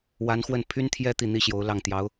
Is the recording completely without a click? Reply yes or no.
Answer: yes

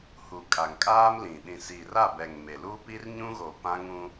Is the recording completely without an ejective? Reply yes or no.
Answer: no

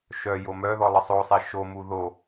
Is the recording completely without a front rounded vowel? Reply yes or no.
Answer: no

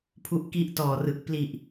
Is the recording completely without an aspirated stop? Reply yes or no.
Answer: no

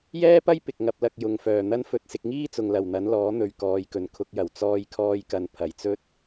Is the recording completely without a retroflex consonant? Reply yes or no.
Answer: yes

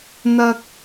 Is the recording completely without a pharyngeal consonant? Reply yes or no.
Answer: yes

